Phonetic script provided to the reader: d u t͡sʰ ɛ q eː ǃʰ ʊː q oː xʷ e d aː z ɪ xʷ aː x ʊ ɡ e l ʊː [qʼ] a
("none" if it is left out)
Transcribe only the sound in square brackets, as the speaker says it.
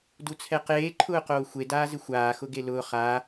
χ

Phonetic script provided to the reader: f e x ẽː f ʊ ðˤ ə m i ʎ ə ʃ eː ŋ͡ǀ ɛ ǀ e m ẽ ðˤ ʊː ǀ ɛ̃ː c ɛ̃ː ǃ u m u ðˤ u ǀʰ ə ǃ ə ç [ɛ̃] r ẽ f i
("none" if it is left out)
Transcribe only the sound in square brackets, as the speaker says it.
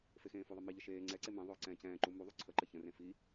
ə̃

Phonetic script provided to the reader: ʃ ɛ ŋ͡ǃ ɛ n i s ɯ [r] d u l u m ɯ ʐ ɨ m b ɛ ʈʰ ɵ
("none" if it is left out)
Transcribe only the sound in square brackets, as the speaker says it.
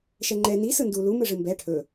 n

